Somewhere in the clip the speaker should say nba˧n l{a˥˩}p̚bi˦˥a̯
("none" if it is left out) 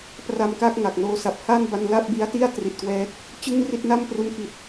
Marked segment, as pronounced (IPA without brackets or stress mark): a˥˩